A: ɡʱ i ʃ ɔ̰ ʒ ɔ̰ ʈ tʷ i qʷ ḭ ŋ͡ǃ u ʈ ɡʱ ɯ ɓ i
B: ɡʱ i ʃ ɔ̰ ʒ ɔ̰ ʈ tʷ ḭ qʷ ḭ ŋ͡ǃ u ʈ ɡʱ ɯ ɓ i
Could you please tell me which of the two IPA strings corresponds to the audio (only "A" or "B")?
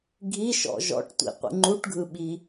B